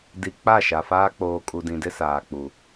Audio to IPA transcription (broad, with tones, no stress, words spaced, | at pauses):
di˨ k͡pa˦˨ʃa˨faː˦ k͡poː˨kʼu˨dĩ˨dɪ˦ saː˨k͡pu˨